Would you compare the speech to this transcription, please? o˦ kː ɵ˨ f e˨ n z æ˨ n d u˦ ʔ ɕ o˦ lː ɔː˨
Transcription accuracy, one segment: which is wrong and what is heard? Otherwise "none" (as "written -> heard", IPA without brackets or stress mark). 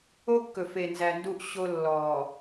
none